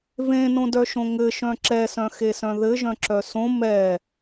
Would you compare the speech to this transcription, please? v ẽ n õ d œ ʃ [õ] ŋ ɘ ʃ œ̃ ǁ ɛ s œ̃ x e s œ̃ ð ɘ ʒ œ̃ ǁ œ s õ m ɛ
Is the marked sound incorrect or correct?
correct